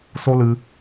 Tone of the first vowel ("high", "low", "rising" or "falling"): high